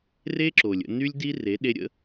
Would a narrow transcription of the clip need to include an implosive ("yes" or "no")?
yes